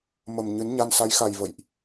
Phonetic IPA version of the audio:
mə˨˩m ɲɨ˨˦nɲa˧n sa˨˦jxa˨˩j və̰˧˨jʔ

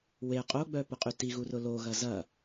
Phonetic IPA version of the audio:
we qʼoɡ͡bœpʊqʼy tiɣurʊ loɣɐ zɐ

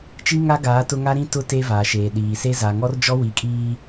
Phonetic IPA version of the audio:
t͡ʃi˦ŋa˦ɡaː˨˦ tʊ˦ ŋa˦ɾĩ˦tʊ˦ te˦vaː˨ʃeː˨ ɗiː˨se˦ za˨ŋɔ˦rd͡ʒɔ˦ wi˨kʼiː˦

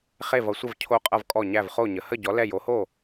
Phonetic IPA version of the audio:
χe˧˩vʌ˩˧sʷə˧˩v cʰo˧˩qʼʌ˧˩vkʼɔ˧˩ ɲæ˧˩vχo˧˩ɲə˩˧ hə˧˩ɟɔ˩˧ lɛ˧˩ jo˩˧ho˧˩

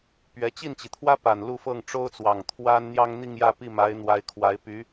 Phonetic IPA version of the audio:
pɥɛ˧˥ t͡ɕi˥˩nt͡ɕi˩t̪ʰwä˥pa˨˩n lu˥˧fɤ˥˩ŋ ʈ͡ʂo˥ʊ̯t͡swɑ˨˩ŋ t̪ʰwa˥n n̪jɑ˥ŋn̪i˥˧ŋjä˥˧pi˥˩ ma˧˥ɪ̯ n̪wa˧˥ɪ̯kʰwa˧˥ɪ̯py˧˥

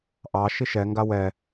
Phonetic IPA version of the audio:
ʔɑ ʃiʃɛŋɡa wɛ

